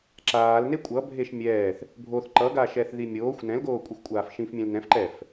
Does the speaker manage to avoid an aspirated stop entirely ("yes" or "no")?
yes